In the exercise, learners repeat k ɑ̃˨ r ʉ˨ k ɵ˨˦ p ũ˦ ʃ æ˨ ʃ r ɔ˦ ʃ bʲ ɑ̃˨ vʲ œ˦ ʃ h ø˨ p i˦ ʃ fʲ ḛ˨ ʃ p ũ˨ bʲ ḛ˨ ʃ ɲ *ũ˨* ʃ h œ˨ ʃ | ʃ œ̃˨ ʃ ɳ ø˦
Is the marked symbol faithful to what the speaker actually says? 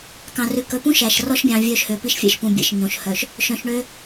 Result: no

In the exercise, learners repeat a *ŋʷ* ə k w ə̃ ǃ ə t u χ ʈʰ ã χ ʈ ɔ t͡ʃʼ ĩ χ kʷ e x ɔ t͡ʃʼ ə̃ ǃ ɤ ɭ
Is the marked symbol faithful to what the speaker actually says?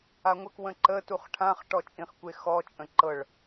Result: yes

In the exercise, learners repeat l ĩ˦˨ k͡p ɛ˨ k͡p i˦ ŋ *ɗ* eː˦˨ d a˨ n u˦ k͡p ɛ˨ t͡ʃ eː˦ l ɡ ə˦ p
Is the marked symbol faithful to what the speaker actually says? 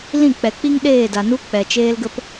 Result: yes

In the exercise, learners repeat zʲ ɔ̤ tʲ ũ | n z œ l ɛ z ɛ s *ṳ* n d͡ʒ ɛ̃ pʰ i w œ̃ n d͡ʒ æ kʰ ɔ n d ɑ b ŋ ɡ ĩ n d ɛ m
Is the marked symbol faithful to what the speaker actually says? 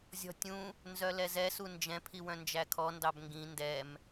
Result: no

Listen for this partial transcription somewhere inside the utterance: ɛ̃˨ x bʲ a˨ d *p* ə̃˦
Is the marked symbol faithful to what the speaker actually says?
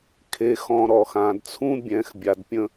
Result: no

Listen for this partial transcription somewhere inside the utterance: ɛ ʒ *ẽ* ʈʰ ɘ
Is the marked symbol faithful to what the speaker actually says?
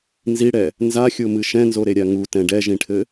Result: no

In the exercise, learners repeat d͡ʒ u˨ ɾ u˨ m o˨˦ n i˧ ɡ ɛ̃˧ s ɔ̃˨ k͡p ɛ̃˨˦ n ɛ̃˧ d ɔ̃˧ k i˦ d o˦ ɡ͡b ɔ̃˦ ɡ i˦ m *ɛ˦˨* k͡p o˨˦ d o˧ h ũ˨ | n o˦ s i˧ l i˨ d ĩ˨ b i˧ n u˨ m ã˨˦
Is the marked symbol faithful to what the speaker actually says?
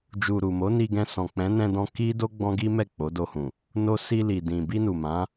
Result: yes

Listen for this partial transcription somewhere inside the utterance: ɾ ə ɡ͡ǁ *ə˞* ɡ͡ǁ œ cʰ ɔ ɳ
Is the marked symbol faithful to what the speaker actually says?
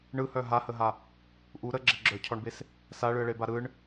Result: no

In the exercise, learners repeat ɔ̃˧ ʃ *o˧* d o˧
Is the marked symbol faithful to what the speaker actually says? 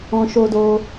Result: yes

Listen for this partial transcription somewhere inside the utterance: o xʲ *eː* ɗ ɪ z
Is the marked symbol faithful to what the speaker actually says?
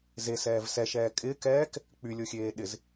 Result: yes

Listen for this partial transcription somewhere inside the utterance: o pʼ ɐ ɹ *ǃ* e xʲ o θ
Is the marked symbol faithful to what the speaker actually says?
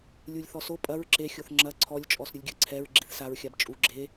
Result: no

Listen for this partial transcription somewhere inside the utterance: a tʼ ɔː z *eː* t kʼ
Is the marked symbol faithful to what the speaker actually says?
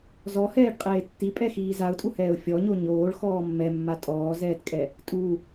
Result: no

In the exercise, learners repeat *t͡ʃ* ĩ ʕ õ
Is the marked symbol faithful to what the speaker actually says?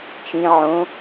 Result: yes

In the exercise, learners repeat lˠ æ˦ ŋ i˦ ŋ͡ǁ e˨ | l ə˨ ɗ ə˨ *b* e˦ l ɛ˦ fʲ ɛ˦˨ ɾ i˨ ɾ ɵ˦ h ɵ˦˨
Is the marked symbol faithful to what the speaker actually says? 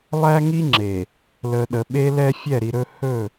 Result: no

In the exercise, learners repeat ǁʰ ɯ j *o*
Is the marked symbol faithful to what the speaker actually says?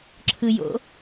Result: no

